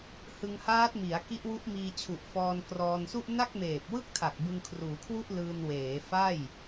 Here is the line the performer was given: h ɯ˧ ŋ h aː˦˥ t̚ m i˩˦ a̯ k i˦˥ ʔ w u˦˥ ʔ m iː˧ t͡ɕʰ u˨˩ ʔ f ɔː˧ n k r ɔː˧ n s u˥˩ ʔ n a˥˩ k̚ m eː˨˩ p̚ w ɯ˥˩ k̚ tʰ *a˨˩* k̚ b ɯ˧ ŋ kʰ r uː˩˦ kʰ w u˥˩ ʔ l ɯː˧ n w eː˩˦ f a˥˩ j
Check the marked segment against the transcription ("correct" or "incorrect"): correct